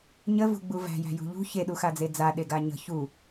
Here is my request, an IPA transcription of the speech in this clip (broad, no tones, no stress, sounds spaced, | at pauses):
ɲ ə v ṳ ɡ͡b u v æ̤ j æ̤ j ṳ ʎ ṳ ç e ɗ u x a d͡z e d͡z a ɗ e ɡ a ɲ ə̤ ç u